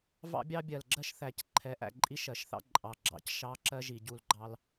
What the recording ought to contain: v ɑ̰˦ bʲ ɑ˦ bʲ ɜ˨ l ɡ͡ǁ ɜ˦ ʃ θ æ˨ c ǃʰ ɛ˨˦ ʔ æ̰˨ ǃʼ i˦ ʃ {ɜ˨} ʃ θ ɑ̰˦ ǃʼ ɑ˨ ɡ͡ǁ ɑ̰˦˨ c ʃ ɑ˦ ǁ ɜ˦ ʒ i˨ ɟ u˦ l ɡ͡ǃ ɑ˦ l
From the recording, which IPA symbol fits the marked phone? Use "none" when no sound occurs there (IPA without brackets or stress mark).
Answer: ɜ˨